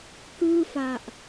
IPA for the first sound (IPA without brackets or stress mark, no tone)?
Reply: k